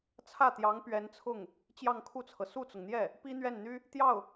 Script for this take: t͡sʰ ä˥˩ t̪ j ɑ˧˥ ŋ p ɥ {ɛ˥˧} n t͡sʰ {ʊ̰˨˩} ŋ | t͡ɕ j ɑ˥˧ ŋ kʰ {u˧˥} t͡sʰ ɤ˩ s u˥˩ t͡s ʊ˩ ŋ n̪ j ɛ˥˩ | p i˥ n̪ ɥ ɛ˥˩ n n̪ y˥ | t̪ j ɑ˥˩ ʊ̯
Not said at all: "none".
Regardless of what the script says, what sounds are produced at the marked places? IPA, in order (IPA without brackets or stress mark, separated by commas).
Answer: ɛ˧˥, ʊ˥˩, u˥˩